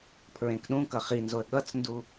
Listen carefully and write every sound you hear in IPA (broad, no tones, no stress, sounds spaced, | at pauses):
pʰ ɹ ẽ k ɗ ũ k ʌ χ i n z o ə̯ ɠ ʌ t͡s n d u